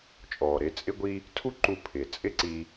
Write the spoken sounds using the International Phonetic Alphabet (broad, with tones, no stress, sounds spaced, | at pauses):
t͡ʃʼ ɔː˩ ɾ ɪː˧ t͡sʼ ɪ˥ ɡʷ i˥ | tʰ u˥ ǃ u˧ pʰ ɪː˩ t͡sʼ ɪ˥ ǀ i˧